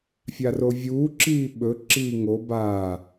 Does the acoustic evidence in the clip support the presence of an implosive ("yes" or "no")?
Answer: yes